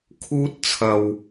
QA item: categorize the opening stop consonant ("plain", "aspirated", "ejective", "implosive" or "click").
aspirated